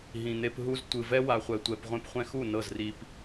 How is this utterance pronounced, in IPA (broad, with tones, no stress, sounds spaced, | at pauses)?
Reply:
ɦ ĩ˨ n̪ e˧ p ɦ u˧ z tʷ ɯ˨ v ɛ˦ w a˨ χʷ ɛ˨ tʷ ɛ˨ p ʁʷ ẽ˧ p χʷ ɛ̃˧ x u˦˨ n ɤ˦˨ z r i˧ p